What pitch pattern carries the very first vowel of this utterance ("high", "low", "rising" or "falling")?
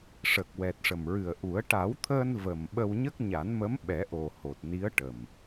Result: low